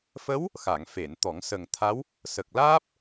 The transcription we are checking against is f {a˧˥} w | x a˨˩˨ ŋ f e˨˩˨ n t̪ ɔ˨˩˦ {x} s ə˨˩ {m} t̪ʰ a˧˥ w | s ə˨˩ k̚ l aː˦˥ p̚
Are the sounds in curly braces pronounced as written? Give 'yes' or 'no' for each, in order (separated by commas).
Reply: no, no, no